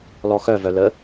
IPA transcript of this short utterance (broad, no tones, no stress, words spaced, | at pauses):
lɔxœvœ lə